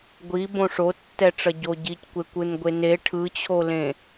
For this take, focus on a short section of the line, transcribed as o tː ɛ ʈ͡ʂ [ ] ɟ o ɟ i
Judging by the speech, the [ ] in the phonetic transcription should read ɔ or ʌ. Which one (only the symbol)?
ʌ